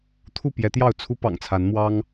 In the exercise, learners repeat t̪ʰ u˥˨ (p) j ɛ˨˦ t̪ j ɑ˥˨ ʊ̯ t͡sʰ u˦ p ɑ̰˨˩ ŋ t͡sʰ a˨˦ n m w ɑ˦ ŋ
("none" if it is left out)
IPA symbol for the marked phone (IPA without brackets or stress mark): p